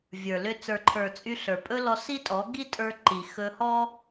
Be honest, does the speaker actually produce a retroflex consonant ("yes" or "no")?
no